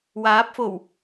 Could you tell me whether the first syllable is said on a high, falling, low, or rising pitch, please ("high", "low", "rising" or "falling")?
rising